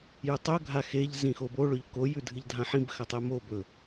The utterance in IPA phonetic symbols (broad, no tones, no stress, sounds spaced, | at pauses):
j ʉ tˤ ɵ ɡʱ a x e ʎ z ĩ x o b o ɭ ɵ ʎ k o j ʉ dʱ ɨ ʎ dʱ ã ħ ĩ b x ɐ tˤ e m o b ɵ